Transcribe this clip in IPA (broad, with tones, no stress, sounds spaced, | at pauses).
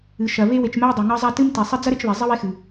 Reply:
ɨ˩ ʃ ɐ˩ β e˦ w e˨ t͡ʃ m ɛ˦ u̯ dˤ ɛ˩ ŋ ɐ˦ zˤ a˦ t ɨ˥ m t i˩ sˤ ɪ˦ d͡z ɐ˥ ɾ ɪ˦ t͡ʃ β ɛ˩ zˤ ɪ˥ w e˦ x ɨ˩